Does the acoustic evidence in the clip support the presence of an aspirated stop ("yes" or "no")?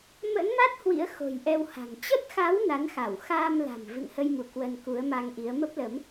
no